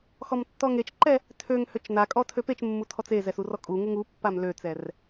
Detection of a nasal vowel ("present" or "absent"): absent